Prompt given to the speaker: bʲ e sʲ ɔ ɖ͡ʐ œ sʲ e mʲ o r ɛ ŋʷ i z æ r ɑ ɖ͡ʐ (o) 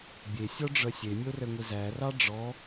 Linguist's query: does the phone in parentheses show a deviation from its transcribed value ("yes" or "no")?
yes